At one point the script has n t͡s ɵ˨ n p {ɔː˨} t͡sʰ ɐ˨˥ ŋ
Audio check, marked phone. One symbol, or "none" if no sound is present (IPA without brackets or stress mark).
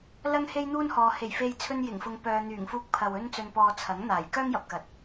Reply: ɔː˨